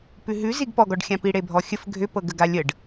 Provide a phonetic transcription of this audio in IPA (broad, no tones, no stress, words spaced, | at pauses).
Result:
pʉɦʉ ziɡpɔɡɔɖxʲã piɽebʱɔxʲəf ɡʱʏpɤɡə ɡalʲəɖ